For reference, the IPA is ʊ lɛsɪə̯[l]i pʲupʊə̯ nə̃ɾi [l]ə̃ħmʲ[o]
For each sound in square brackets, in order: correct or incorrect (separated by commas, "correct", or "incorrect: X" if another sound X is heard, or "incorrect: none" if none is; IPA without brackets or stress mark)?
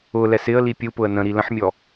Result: correct, correct, incorrect: ɔ